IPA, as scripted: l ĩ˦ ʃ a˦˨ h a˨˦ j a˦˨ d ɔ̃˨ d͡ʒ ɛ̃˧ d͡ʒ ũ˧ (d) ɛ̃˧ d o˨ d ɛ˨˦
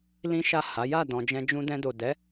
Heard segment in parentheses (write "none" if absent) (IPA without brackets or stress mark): d